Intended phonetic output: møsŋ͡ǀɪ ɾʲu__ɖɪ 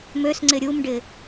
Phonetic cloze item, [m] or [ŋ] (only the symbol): m